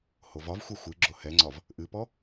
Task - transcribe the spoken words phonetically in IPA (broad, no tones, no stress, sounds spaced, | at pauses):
h o v ɒ v xʷ ɛ xʷ ɨ ɡ͡ǁ o h ɛ ŋ͡ǀ ɒ v | ʔ ɨ p ɔ